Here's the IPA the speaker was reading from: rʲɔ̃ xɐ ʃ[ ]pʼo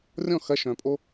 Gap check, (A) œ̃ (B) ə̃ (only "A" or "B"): A